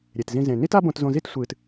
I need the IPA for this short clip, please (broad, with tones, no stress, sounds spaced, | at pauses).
ɾʲ e˨ t z ĩ˧ z ẽ˨ n i˦ t a˦ b õ˧ t z õ˧ z i˦ t sʷ ɨː˨ t